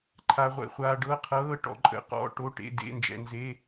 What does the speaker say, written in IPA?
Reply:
ǃʰa˩ʁʷɛ̰˩χʷaː˩ ɖɤ˩˧˩qʰɤː˩˧˩ ʈɔ̰˩ǃʼə̰˩˧˩qɔ̰˩˧˩ ʈo˩˧˩ʈḛ˩˧˩ dḛ˩˧˩nd͡ʒɛ̰˩nze˩˧˩

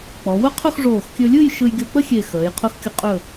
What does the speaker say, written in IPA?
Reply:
k͡pɔ˩˧wʊ˥qʰʊ˥˧x ʐoː˧˩xkʲɵ˧lʲɯ˥˧j ʃɯ˧jɡʲo˧k͡pə˥xʲe˧˩ xəː˩˧j qʰʊ˧xkʲʊ˧qʼɵ˧˩

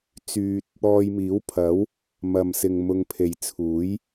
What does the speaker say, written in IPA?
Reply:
t͡syː˧t̚ | ɔː˧jmiː˨˥wpʰɐ˨˥w | mɐ˧msɪ˧ŋ mʊ˧ŋpʰe˨jt͡sʰuː˨˥j

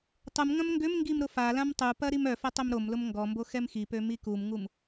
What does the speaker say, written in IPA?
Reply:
tˤum ŋɐ̃mŋɡʏmŋɡim ɾʊfalãm tˤupɐ ɾimœfɐ tˤømɾomlʊm ŋɡɔmbo xɛmxipø mikumŋum

